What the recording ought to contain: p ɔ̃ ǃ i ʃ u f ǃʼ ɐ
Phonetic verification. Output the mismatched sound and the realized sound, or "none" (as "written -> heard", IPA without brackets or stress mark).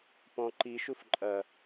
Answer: none